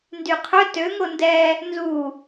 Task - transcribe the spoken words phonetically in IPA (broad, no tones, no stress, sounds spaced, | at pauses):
n d y qʰ œ t ø ŋ o n d ɛ | n z u